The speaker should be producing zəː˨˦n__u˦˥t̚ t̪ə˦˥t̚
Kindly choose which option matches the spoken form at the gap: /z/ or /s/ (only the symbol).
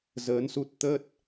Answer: s